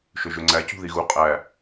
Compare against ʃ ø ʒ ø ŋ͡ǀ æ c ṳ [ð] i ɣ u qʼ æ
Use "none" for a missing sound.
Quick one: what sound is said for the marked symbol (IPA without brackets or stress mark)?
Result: ð